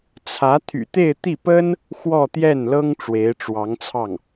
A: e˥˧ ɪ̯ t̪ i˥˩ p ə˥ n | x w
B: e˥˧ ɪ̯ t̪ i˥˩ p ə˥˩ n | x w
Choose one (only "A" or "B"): A